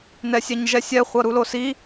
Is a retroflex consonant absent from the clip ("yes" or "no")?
yes